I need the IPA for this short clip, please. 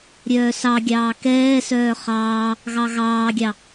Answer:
ɾʲ œː s ɑ ɡʲ ɑː k ɛː s œː χ ɑː | ɣ ɑ ɣ ɑː ɡʲ ɑ

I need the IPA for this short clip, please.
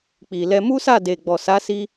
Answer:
k͡p i˨ l ɛ˧ m u˦ s a˦˨ d e˨ ɡ͡b ɔ˨ s a˨˦ s i˧

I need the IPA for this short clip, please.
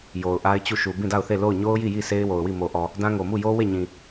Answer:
j o˨ ʊ̯ ʔ a˦ ɪ̯ t͡ɕ u˦˨ ʃ u˨ b ĩ˦˨ d a˦˨ ʊ̯ θ e˦˨ l o˦˨ ʊ̯ ɲ o˦ ʊ̯ j i˦˨ j i˦˨ s e˦ ɪ̯ w o˨ ʊ̯ w i˦˨ m o˨ ʔ ɔ˨ | d ã˦ ŋ o˨ m u˦˨ j o˦ w e˦˨ ɲ ĩ˨

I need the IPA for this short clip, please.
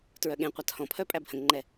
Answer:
t ɹ œ ɠ ẽ qʷ a t h ɔ̃ pʰ œ pʼ æ b h ə̃ ŋ ŋ͡ǃ ɛ

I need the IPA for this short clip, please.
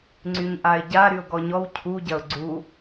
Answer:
ŋ͡ǀ y ɲ ʔ a ɪ̯ ɟ a ɾ y ʊ̯ ɡ ɔ ɲ ɔ w cʰ u ɟ ɐ ʊ̯ ɡ͡ǀ u

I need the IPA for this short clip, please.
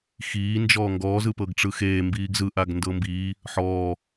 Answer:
x iː n d͡ʒ ɔː ŋ ɡ ɔː z ɯ p ɤ ɡ ʈ͡ʂ ɯ x eː m b iː ɡ z ɯ ʔ a ɡ n d ɤ m b iː | ħ ɔː

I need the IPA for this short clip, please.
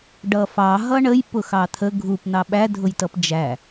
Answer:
ɖ ʌ f ɑ ɦ ʌ ɳ ə j p ʊ x ɑ t̪ʰ ə ɡʱ u p n̪ ɑ ɓ æ dʱ ʊ j t ʌ p d͡ʒ æ

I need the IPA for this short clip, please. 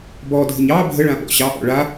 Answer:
b ɔ dʱ ə ɲ ɑ bʱ ə ɭ ã ɓ ɔ̰ ɕ ɑ ʔ ɔ̰ ɭ a

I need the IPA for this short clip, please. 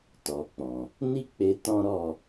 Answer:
t ɔ˨ k͡p ɔ̃˨ | n i˦ k͡p e˧ t ɔ̃˦ ɾ ɔ˦˨

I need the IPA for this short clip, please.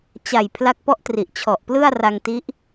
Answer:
t͡ɕ a˨˩ j pʰ l a˦˥ k̚ p ɔ˦˥ ʔ t r i˨˩ ʔ t͡ɕʰ ɔ˨˩ ʔ p l ɯ˥˩ a̯ r a˧ ŋ t i˦˥ ʔ

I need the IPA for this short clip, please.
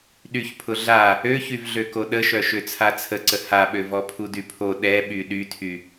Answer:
ɗ y ç pʰ ʊ ɮ a | ø ç y v ɮ ø k o ɗ ə ʃ œ ʃ ø t͡sʰ a t͡sʰ ə ǀ ə h a ɓ ø v ɔ pʰ u d y pʰ o ɗ ɛ ɓ y ɗ y tʰ y

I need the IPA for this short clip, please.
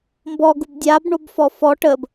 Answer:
m b ɔ ɡ u b dʲ a b ɳ o b f ɔ f ɔ ʈ ə b

